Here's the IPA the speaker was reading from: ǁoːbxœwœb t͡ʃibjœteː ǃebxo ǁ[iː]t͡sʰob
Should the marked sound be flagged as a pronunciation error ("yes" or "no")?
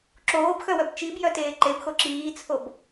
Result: no